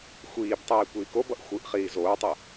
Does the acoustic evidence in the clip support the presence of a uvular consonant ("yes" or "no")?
yes